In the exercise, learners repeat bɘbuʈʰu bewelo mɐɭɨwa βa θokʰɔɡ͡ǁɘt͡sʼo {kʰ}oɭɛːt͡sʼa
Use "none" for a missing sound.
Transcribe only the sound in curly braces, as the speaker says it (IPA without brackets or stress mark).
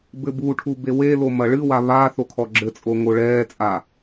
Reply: ŋ